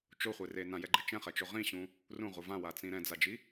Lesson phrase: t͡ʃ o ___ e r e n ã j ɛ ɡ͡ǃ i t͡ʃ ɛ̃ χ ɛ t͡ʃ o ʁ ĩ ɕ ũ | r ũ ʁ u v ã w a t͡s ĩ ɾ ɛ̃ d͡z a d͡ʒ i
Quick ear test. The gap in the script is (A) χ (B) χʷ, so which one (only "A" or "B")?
B